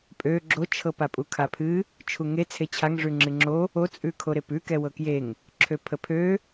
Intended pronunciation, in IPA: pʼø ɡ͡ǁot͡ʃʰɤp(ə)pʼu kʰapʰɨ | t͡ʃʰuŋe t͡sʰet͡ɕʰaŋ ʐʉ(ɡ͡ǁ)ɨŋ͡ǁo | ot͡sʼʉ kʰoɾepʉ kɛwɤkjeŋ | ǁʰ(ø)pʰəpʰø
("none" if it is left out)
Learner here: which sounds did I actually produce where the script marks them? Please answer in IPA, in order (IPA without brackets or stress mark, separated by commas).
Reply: a, ŋ͡ǁ, ø